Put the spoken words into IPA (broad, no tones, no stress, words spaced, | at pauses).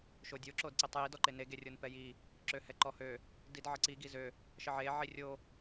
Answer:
ʃodʲo ǁodǀitˤji dɔǃene ɡerʲonpɛji | ǁøhɛǃɔhø | didʕəǀi ɡizø | ʃəʕe ʕirʲo